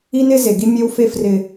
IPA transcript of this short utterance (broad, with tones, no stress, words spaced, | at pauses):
i˦nɪ˦ze˨ ɡi˦mʲe˦wfe˦ frɪ˦